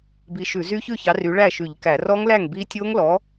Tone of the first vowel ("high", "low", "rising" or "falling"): rising